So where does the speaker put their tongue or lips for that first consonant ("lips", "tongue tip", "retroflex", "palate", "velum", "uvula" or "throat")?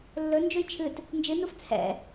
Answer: tongue tip